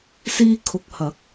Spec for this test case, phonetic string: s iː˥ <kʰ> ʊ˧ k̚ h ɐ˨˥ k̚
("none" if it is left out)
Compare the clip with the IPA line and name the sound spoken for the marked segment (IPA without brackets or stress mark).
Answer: kʰ